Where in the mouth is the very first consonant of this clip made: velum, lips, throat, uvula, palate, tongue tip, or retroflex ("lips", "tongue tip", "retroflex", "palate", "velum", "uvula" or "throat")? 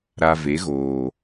tongue tip